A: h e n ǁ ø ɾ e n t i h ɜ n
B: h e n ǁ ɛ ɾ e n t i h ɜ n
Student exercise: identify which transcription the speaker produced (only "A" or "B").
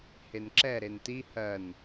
B